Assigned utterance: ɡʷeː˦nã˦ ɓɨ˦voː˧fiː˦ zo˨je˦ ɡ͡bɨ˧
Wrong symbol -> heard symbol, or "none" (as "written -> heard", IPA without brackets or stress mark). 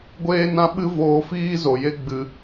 none